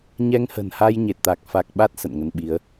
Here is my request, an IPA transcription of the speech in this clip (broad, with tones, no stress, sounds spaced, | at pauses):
ɲ ɛ˧ ŋ h ə̤˨˩ n h a˧ j ɲ e˨˩ t̚ t̪ a˨˩ k̚ f a˨˩ k̚ ɓ a˦˥ t̚ s ə̰˧˨ n ŋ ə˧ n ɓ i˨˦ ə̯